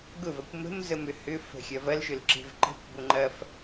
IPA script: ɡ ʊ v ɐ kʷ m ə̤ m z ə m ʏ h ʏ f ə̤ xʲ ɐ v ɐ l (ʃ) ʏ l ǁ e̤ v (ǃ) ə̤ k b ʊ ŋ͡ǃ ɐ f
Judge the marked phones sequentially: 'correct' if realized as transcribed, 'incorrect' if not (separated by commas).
correct, correct